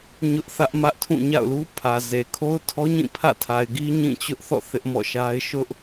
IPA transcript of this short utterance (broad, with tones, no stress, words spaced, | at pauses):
ɲʊ˦ʔθä˦ʔmä˦ʔtʰũ˦˨ ɲa̰˦˨ʊ̯lu˦pʰä˨ze˨ kʰo˦ʊ̯tʰɔ˦ɲĩ˦˨ pʰä̰˦˨tʰa˨ɪ̯ɡi˦ ɲĩ˦˨t͡ɕʊ˦ʔθɔ̰˦˨ θɪ˦ʔmɔ̰˦˨ʃa˦ɪ̯ ʃʊ˦ʔ